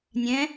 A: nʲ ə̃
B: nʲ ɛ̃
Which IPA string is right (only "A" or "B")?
B